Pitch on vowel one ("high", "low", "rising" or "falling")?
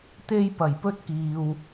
high